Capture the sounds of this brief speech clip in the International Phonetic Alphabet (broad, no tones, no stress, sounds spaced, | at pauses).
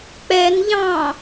k͡p ɛ n ʎ ɑ̃